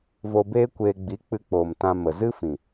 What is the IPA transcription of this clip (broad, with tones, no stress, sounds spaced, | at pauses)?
v o˧ b eː˦ kʷ eː˧ ɡ͡b i˨˦ k͡p ɨ˧ k͡p oː˨ m t ã˧ m ə˨ z ɨ˦ f ĩ˨